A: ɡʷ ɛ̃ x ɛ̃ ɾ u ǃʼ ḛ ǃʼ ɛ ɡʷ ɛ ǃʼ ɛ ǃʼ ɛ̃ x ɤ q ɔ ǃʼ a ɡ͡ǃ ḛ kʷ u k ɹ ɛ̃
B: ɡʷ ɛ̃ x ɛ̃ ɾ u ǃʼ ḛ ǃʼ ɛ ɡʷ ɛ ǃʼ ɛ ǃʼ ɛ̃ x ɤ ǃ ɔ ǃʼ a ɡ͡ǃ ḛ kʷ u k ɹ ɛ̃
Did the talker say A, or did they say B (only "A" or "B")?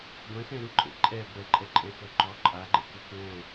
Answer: B